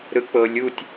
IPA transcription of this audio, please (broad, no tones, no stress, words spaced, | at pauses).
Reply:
ɾɯk͡pɤ lʲutʲ